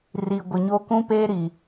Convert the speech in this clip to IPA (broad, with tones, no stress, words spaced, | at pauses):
ri˨ɡʷɪ˨ɲo˦ kũ˦peː˦ɾi˨